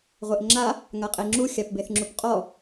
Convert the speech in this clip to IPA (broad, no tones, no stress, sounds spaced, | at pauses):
ʁʷ e ʔ ŋ͡ǁ a | ŋ a qʼ e ŋ͡ǁ u xʲ a p b e θ ŋ͡ǁ u p qʼ ɔ